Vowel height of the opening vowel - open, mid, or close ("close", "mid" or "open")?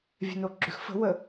mid